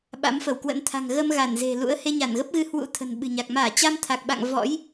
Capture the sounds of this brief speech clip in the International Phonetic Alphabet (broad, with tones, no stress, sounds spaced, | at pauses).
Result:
ɓ a̰˧˥ m f ə˧˩ w k w ə̰˧˥ n t̪ʰ a̤˨˩ ŋ ɣ ə˧ m ɣ a˧˩ n z e̤˨˩ l ṵ˧˥ ə̯ h e˧ ɲ a˧˩ n ɣ ə˦˥ p̚ ɣ ɨ˧ h w ṵ˧˥ t̪ʰ ə̤˨˩ n ɓ ɨ̤˨˩ ɲ a˨˩ k̚ m aː˧˩ t͡ɕ a˧ m t̪ʰ a˨˩ k̚ ɓ a̰˧˨ ŋ v ɔ̰˧˥ j